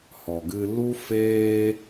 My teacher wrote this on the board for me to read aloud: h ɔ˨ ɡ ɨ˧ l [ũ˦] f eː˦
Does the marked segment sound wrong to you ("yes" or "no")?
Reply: yes